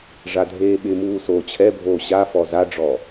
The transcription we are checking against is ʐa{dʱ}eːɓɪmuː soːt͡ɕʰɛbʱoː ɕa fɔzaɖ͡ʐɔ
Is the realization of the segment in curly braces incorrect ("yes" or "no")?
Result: no